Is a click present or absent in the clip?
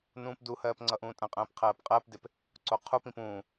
present